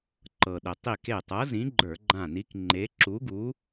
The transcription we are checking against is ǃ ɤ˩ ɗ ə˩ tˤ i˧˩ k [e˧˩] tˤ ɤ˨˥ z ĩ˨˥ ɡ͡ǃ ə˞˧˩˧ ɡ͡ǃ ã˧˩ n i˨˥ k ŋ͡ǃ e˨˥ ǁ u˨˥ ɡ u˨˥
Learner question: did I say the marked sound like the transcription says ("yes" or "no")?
yes